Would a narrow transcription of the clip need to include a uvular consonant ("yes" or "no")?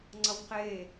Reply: yes